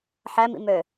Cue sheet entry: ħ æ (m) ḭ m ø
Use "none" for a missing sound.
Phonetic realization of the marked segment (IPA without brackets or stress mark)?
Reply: m